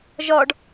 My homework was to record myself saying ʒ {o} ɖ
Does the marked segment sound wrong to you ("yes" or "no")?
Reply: yes